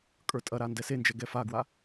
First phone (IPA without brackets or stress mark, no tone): kʼ